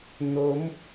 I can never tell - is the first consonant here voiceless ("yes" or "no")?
no